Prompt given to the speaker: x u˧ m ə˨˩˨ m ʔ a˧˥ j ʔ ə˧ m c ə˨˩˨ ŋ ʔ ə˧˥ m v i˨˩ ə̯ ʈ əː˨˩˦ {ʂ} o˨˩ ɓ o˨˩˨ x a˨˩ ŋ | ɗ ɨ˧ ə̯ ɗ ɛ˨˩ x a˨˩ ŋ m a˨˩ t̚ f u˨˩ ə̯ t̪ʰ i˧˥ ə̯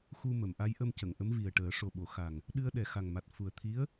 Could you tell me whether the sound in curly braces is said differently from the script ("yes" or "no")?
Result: no